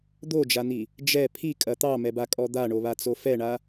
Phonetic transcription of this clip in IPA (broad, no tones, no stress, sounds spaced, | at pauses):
d̪ o d͡ʒ a n̪ i | d͡ʒ ɛ pʰ i kʼ ɐ t̪ ɑ m ɛ b a kʼ ɔ d̪ a ɳ o β a t͡s o f ɛ ɳ a